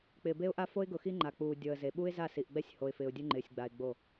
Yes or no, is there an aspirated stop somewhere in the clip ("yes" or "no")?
no